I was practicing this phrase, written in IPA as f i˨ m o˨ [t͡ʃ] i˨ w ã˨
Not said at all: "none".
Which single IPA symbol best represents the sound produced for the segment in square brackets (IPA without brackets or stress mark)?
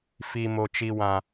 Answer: t͡ʃ